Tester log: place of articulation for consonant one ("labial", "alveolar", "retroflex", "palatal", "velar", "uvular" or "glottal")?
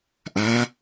glottal